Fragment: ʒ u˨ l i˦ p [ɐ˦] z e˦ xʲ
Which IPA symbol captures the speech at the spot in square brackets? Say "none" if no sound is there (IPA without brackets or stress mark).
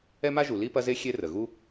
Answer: ɐ˦